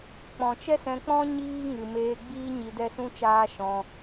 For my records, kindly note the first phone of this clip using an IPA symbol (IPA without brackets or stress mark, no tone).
k͡p